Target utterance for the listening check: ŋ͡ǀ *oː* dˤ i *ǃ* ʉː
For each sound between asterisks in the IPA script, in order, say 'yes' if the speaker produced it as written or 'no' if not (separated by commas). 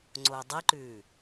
yes, yes